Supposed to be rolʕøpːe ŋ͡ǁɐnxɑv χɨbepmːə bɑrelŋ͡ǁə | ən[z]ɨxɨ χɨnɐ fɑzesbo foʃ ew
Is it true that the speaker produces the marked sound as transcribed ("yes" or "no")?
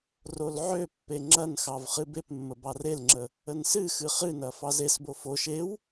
no